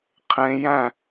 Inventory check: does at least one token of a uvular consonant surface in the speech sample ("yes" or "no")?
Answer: yes